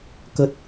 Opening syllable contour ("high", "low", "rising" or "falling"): low